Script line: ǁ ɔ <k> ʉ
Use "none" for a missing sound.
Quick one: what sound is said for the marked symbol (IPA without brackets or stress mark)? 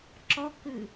k